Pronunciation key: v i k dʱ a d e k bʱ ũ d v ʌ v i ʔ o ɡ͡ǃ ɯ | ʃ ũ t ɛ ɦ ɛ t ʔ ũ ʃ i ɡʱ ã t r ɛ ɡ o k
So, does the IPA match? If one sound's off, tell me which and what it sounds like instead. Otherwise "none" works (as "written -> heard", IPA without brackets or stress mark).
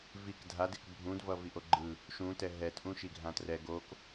none